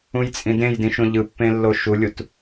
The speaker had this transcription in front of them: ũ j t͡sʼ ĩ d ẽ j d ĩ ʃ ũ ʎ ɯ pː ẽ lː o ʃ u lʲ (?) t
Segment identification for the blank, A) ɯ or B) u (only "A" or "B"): B